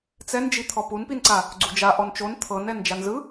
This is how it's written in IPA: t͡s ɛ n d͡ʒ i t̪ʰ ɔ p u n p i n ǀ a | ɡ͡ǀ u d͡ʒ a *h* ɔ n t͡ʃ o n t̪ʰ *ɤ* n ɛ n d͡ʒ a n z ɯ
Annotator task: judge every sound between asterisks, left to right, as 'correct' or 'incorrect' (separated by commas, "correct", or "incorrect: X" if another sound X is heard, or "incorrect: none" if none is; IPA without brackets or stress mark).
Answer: incorrect: ʔ, correct